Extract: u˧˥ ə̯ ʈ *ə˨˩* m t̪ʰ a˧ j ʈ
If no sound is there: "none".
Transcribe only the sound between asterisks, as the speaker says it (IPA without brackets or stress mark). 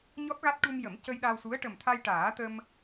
ə˨˩